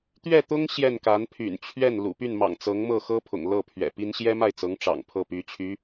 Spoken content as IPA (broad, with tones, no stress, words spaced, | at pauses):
t̪ɥɛ˥˩t̪ʊ˥ŋ ɕjɛ˥˩nka˧˥npʰy̰˨˩n t͡ɕʰɥɛ˥˩n lṵ˨˩py˥˩nmɑ̰˨˩ŋ t͡sɤ˧˥ŋmɤ˥˩xɤ˥ pʰʊ̰˨˩ŋlɤ˥˩pʰɥɛ̰˨˩pi˥n ɕjɛ˥ma˥˩ɪ̯t͡sɤ˧˥ŋ ʈ͡ʂɑ̰˨˩ŋpʰɤ˥˩py˧˥t͡ɕʰy˧˥